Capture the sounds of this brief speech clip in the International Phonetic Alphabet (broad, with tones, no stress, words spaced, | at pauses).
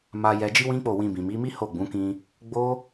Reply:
ma˧jɛ˧ d͡ʒi˦wĩ˦k͡po˦˨ wĩ˧ bĩ˨mi˨˦mi˦ ho˦˨ɡ͡bũ˨˦kĩ˧ | ɡ͡bo˦